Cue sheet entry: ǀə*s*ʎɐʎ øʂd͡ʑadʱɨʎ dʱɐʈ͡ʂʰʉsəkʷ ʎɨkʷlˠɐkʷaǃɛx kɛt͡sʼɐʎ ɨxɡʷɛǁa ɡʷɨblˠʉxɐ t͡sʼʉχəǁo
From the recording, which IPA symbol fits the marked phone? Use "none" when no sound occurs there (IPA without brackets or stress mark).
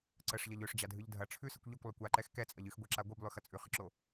ʂ